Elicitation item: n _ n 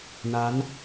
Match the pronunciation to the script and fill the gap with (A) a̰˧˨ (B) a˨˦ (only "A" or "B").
B